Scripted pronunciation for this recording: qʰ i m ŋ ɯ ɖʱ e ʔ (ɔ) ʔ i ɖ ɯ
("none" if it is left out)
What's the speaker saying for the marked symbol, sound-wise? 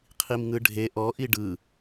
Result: ɔ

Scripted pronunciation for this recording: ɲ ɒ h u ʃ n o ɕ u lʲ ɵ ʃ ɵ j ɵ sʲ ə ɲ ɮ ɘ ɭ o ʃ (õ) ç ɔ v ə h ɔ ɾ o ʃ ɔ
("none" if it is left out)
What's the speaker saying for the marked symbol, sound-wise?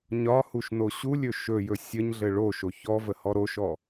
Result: o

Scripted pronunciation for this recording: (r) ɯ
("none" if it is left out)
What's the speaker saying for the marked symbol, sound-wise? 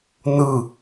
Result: n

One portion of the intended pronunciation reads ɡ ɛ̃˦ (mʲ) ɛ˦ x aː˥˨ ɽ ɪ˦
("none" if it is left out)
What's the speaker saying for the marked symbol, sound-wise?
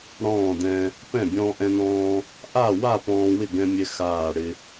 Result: mʲ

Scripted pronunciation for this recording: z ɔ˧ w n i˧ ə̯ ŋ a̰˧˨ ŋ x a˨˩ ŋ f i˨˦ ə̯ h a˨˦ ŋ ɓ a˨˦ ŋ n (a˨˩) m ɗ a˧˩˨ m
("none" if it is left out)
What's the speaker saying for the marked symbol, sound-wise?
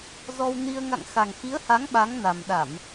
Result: a˨˩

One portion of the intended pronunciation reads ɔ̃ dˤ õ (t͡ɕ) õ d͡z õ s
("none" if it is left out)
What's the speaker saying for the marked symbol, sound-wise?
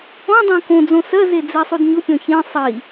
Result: k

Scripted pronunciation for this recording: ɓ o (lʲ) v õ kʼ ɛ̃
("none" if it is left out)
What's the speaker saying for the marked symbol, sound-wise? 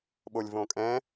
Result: lʲ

